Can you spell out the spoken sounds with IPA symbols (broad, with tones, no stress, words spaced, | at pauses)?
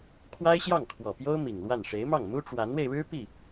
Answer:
kʰwa˥ɪ̯ɕjɑ˥˩ŋkʰwɔ˨˩pjo˥ʊ̯ mi˨˩ŋlwa˥˩n ʂe˧˥ɪ̯mɑ˥˩ŋ mu˥ʈ͡ʂwa˧˥nwe˧ɪ̯ɻɻ̩˥ pi˥˩